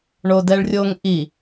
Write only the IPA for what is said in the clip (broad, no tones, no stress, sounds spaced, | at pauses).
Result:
ɳ o d ɛ ɭ rʲ o ŋ ʔ i